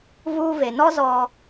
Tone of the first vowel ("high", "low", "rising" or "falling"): high